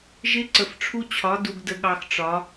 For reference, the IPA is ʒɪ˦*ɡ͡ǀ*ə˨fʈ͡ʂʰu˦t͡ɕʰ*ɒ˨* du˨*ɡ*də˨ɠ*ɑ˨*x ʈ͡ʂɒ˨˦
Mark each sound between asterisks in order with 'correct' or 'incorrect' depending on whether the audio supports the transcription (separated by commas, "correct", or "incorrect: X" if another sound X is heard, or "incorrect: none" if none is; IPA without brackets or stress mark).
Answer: incorrect: ǀ, incorrect: ɒ˨˦, correct, correct